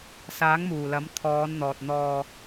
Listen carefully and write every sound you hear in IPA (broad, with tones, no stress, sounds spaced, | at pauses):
s aː˨˥ ŋ m uː˨˩ l ɐ˨˥ m t̪ʰ ɔː˨˧ n n̪ ɔː˨ t̚ n̪ ɔː˧